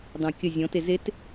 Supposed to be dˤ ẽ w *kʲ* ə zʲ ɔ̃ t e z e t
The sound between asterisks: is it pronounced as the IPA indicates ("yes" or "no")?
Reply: yes